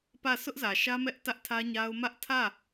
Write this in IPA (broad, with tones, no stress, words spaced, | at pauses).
pä˦˨ sʰʊ˦ʔzä˨ʃä˦ mɛ˦ʔtä˦ʔtʰä˦ɲa˦ʊ̯ mä˦ʔ tʰä˦˨